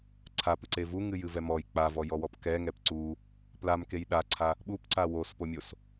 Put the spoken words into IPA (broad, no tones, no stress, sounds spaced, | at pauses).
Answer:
ǀʰ a p ɨ ǀ e v u ŋ ɨ j ɨ v ɛ m ɔ j k͡p a v ɔ j ɔ w ɔ p k ɛ ŋ ɛ p ǀ u | p l a m k e j ɗ a ǀʰ a | ɓ u p ǀ a w o s p o mʲ o s